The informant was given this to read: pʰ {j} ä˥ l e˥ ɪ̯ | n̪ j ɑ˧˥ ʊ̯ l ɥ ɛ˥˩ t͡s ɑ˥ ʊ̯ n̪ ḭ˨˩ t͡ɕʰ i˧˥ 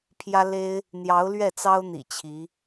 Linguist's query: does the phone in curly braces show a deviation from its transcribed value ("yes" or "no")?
no